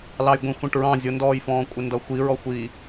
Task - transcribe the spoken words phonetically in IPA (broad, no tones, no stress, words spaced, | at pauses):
lɑjɡʷĩxʷɛ̃ʈɹɑ̃ zʲʊndɔːjfɔ̃ːkʷʼɪ ndʌxʷi ɹɔxʷi